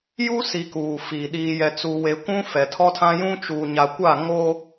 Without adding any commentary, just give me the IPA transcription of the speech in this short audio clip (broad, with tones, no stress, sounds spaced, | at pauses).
j u˦ s i˨ k uː˨ f iː˨ ɗ iː˨ j ɛ˨ t͡s u˨ w e˨ kʷ ũ˦ f ɛ˨ tʰ ɔ˦ tʰ ã˦ j ũ˦ t͡ʃ uː˨ ɲ a˨ kʷ a˦˨ ŋ o˦